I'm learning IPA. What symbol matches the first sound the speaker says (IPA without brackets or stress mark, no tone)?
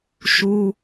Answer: ʃ